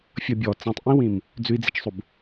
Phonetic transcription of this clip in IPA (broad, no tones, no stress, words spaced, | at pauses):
fʲʌbʲɔ t͡sĩtˤʔĩwĩm | d͡zʉi̯d͡zit͡ʃsˤub